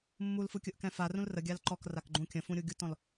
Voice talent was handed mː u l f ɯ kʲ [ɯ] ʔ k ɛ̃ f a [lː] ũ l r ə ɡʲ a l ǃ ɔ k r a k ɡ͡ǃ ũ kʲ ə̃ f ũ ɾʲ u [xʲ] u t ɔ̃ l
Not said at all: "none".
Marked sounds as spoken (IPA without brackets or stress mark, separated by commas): ɯ, r, ɡʲ